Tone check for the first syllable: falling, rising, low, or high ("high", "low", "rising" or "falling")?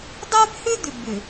high